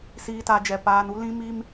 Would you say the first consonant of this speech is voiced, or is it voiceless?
voiceless